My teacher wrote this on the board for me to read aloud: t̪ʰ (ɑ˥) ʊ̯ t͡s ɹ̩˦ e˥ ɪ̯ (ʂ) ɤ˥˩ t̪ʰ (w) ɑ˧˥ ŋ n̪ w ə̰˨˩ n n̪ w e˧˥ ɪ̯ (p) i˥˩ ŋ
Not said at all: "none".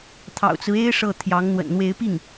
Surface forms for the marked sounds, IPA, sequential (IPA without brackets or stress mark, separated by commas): ɑ̰˨˩, ʂ, j, p